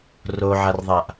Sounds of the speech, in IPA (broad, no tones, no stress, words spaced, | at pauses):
roʕarðˤaʔ